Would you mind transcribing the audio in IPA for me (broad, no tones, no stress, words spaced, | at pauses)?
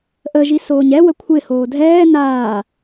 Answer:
ʔəʒi soːɲɛwə kʷʰɪhoː dʱɛː naː